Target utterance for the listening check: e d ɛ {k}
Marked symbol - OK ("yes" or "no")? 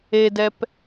no